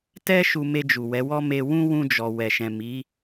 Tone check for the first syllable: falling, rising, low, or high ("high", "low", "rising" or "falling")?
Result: high